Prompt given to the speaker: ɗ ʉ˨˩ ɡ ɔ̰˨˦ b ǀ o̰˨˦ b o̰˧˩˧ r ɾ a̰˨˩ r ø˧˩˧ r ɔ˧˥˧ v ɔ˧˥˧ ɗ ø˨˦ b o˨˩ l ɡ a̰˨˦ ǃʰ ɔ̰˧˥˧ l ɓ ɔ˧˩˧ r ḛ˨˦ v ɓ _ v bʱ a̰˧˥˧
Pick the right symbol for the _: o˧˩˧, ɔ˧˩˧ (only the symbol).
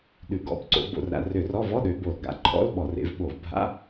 o˧˩˧